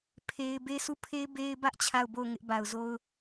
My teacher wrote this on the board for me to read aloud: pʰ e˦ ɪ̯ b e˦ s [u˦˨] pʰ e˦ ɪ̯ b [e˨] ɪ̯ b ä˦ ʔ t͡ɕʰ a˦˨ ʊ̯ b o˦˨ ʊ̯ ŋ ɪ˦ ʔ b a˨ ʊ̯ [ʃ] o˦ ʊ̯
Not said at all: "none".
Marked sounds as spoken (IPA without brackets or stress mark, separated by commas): u˦˨, e˦, z